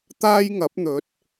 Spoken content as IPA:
t̪ aː˥ j ŋ ɐ˨˥ p̚ n̪ ɵ˨˥ t̚

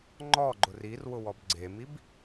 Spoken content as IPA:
ŋ͡ǃ ɔ ɡ͡ǃ ʊ r i r w ʊ w ɔ b ɡ͡ǀ e m i b

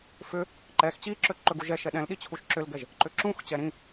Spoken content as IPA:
f ʏ | ǃ ɛ x t͡ɕ i ǁ ɵ ǃ ɵ ɡ u ʒ ɛ ʃ ɛ ɗ ɛ̃ l ɗ i t͡ɕʰ u ʃ ǁ ʏ l ɡ ɛ ʒ | ǃ ʏ ǁ ũ x t͡ɕ ɛ ɾ ĩ

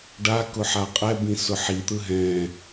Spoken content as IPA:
ɖ a k ʊ ħ a qʼ ɛ b ĩ s ʊ ħ i t̪ ɯ ɦ ɛ̃

